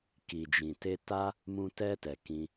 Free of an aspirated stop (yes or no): yes